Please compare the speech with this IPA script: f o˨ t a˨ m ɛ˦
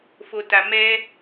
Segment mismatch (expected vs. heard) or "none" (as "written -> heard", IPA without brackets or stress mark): none